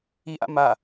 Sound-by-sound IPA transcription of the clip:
iʔa̰ ma

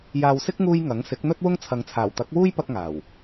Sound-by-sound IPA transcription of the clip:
jaː˨wsɪ˥k̚ŋuː˧j ŋɐ˨˥ŋ sɪ˨˥k̚n̪ɵ˥t̚wʊ˥ŋt͡sʰɐ˨˧ŋ t͡sʰaː˨˩wt̪ɐ˨˥k̚wuː˥jpɐ˧k̚ ŋaː˨˩w

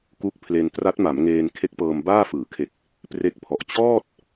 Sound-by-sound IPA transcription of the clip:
ku˦˥k̚pʰle˧n tra˦˥t̚ma˩˦mŋeː˧n kʰe˦˥k̚pɤː˧mbaː˥˩ fɯː˩˦kʰe˨˩k̚ | pre˦˥k̚pʰɔ˨˩ʔ t͡ɕɔː˥˩t̚

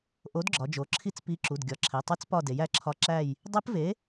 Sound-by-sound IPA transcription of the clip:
ʔo˨˥dɡ͡ǁɒ˩˧d͡ʒo˩˧ǁʰi˦˨t͡s pi˨˥ǁu˩˧˩d ɡʲɒ˩˧˩ǁʰe˩˧˩tˤe˦˥t͡spɒ˦˨ de˩˧jæ˨˥ǁʰɒ˨˥ ǁæ˦˨j | dˤe˦˥pve˨˥

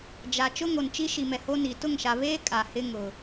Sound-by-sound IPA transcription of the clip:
d͡ʒa˨ t͡ʃʊ˦ŋo˨nt͡ʃi˦ ʃi˨mɛ˨ho˦ ni˨ tʊ˦˨ŋʃa˨βeː˦ kʼa˨hɪ˦ŋʊ˨

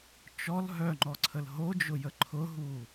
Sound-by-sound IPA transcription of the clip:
t͡ʃɔl ɦœŋ͡ǃɔǀʰəl ɦod͡ʒʊjə ǃʰʊɦu

